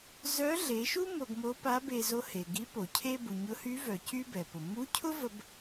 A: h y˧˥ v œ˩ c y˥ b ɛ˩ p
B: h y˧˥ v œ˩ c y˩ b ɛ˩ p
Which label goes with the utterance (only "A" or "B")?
A